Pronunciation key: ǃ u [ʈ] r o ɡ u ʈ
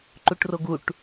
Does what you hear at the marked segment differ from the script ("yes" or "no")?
no